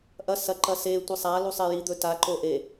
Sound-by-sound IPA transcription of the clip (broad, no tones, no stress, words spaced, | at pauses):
ʔɐ sɐǃɐ se tʷɨsˤalu sˤejid̪ɵ taǃo ʔe